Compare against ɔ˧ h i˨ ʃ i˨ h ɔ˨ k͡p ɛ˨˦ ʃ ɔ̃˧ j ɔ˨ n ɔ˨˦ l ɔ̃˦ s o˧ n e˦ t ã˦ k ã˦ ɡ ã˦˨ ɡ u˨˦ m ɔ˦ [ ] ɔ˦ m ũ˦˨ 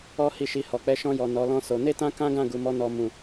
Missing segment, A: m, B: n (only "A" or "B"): B